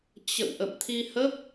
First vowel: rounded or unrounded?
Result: unrounded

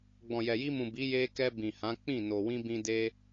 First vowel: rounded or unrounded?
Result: rounded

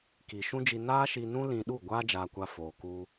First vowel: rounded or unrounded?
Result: unrounded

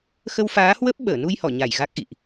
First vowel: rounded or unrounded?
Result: unrounded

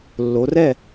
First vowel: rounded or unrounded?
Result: rounded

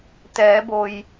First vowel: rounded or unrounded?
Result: unrounded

